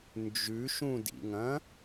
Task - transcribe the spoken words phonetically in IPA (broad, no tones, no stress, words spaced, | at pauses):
nd͡ʒʉʃũdḭŋɐ̃